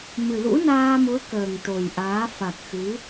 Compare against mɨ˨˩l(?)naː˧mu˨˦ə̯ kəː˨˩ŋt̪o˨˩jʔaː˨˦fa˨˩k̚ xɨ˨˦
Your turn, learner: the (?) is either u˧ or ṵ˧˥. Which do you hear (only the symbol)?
ṵ˧˥